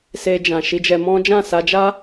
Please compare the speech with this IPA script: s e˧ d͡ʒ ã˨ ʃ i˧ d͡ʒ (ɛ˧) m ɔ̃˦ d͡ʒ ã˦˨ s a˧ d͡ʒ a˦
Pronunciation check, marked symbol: correct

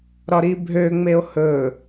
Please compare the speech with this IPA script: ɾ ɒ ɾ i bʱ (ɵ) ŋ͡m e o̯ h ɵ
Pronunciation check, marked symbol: incorrect: ø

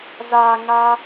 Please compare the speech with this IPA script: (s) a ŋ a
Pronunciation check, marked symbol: incorrect: z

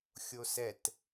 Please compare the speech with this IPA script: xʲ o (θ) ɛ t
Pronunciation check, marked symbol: incorrect: s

